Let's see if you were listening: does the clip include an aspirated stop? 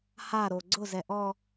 no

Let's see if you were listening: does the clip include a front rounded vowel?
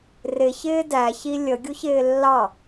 no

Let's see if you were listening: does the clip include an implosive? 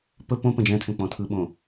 yes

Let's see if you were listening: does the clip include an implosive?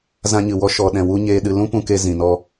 yes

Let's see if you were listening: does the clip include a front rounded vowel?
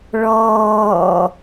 no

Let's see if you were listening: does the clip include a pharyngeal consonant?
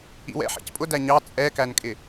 yes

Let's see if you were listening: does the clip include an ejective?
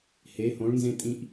yes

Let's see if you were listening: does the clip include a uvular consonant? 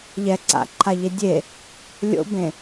no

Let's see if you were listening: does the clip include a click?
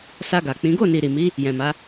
no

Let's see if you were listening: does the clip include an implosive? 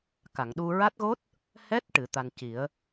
yes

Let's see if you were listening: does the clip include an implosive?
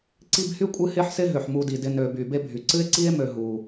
no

